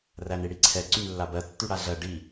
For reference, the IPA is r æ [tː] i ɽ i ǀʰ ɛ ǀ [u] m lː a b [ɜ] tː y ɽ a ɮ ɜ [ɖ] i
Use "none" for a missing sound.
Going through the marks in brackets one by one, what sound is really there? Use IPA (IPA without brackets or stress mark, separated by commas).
n, y, ɜ, ɖ